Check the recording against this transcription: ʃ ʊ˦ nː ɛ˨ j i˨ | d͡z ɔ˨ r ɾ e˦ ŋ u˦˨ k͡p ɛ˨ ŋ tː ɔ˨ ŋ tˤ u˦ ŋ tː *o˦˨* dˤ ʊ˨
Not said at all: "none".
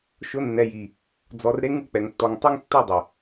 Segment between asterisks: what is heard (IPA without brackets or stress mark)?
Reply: o˦˨